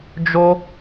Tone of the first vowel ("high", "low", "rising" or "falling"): high